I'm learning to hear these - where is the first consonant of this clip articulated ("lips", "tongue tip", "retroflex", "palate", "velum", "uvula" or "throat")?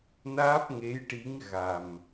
tongue tip